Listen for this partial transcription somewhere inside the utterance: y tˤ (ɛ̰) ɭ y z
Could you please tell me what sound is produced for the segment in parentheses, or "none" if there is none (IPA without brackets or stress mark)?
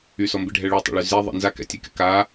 ɛ̰